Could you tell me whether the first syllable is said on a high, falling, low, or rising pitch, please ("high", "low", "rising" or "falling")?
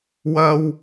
high